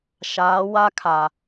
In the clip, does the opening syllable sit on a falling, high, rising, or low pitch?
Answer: rising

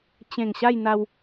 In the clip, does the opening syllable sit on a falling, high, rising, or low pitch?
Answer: low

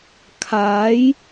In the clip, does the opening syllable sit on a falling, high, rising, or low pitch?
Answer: rising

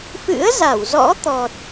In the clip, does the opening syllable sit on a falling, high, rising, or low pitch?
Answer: rising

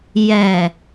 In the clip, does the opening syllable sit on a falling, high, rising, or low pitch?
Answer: low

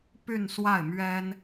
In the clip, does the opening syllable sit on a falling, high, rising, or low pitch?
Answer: falling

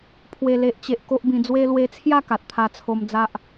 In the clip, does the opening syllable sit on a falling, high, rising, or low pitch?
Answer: low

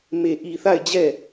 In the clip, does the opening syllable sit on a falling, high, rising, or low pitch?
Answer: low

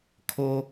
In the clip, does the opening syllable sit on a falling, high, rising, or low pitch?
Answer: high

